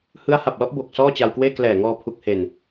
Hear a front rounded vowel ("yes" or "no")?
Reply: no